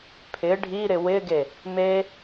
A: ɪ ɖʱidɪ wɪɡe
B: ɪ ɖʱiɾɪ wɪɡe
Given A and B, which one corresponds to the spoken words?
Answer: B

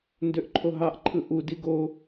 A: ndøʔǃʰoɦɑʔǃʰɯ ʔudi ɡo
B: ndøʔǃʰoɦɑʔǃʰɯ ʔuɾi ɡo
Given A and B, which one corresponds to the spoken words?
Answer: A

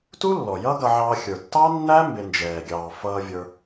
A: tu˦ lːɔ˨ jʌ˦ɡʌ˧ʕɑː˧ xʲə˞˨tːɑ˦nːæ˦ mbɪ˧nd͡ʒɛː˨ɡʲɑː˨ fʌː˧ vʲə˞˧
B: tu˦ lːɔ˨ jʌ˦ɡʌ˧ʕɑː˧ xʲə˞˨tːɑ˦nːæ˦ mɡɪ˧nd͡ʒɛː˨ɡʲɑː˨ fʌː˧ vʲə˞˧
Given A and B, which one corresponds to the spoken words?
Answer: A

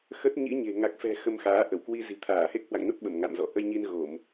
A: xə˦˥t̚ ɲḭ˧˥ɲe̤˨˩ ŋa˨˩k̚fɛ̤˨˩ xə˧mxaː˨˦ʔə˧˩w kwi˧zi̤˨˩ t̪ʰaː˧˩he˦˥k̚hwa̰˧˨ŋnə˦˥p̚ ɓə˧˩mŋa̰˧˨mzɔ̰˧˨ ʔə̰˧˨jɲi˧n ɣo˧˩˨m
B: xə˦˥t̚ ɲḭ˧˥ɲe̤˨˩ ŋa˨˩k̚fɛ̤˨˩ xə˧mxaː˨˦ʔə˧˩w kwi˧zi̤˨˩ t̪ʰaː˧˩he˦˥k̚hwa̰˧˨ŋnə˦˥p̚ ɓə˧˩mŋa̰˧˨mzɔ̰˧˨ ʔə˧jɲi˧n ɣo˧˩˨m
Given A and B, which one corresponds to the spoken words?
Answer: B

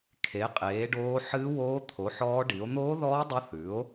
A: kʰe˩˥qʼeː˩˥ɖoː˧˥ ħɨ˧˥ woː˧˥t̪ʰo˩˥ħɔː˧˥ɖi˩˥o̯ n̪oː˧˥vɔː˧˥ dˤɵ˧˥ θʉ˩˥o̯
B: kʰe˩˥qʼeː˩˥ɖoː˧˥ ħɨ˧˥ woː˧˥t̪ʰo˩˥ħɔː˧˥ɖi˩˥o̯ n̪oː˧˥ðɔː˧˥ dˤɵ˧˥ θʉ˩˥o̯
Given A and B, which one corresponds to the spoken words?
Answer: B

